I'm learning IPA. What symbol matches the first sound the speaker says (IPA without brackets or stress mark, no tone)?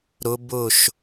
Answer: ɾ